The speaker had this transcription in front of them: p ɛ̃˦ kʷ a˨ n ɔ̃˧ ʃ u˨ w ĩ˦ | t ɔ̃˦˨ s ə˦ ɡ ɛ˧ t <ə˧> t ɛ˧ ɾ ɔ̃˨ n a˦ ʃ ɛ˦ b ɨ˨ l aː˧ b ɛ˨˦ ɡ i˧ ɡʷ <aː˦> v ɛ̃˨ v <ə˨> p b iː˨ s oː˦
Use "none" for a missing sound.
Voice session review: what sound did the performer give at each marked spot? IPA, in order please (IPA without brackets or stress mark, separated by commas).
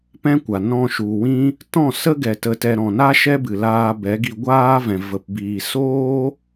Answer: ə˧, aː˦, ə˨